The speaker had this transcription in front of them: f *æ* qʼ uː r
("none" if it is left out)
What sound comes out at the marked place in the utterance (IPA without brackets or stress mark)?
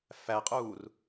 æ